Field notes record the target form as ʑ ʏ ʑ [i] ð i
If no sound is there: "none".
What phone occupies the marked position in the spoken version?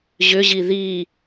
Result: i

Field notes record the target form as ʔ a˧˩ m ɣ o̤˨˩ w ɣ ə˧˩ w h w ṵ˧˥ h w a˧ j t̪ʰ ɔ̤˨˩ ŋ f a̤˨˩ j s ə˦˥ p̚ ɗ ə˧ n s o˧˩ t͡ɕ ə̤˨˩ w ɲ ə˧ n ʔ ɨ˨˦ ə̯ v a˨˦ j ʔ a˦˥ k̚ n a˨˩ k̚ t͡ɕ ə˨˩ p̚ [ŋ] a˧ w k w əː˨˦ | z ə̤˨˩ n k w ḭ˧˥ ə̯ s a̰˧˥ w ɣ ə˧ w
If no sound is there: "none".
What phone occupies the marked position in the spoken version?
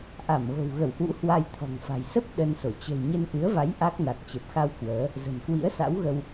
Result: x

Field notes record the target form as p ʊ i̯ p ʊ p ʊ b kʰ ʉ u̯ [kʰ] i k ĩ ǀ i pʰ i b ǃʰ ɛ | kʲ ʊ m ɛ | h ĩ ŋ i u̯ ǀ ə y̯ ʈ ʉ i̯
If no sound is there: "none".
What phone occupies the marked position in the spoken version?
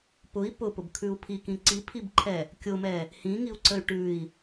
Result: pʰ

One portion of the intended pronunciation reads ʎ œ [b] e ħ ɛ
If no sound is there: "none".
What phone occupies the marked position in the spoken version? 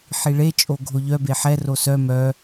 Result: b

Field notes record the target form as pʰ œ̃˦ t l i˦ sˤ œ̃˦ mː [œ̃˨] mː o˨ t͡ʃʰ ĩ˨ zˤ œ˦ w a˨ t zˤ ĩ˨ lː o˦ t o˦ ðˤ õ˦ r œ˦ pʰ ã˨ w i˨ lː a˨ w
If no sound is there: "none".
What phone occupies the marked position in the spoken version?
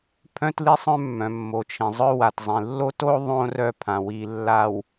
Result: œ̃˨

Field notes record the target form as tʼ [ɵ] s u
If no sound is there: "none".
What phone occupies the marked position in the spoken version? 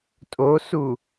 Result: o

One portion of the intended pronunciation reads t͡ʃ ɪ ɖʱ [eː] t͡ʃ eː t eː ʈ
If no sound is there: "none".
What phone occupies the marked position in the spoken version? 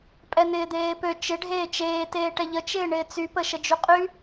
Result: eː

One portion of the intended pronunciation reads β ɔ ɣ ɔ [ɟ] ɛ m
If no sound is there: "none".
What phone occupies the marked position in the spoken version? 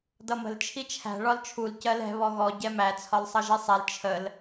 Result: ɟ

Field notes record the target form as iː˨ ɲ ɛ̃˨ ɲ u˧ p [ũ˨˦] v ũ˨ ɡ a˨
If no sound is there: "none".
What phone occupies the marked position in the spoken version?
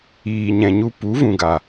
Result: u˨˦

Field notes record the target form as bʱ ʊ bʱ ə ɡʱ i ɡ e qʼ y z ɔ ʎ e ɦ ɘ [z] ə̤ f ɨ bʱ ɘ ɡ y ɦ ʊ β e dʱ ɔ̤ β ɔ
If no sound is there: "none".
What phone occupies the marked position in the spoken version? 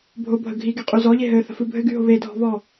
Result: θ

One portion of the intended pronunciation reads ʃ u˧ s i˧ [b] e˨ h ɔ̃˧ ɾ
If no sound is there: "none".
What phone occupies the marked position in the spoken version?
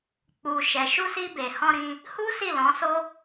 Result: b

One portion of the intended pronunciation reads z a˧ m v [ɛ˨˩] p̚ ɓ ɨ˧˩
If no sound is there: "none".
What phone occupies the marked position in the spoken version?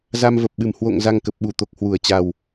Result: ə˨˩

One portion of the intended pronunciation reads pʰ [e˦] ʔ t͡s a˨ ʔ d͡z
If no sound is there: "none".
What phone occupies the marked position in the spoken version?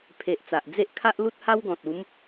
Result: e˨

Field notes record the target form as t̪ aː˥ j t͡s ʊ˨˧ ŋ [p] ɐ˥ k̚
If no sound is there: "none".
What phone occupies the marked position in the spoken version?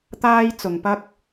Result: p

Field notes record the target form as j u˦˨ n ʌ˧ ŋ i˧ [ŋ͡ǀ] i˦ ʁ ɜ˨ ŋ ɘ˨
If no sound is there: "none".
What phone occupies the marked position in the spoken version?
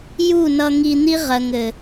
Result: n̪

